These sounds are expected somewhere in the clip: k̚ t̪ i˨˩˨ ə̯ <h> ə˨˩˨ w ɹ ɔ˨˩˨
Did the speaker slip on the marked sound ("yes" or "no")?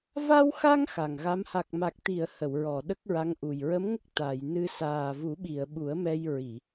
no